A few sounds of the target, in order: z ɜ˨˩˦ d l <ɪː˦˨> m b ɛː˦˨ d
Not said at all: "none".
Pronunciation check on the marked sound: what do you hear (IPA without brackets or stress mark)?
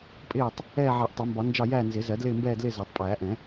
ɪː˦˨